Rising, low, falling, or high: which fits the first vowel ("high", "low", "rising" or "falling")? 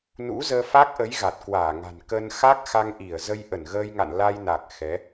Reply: rising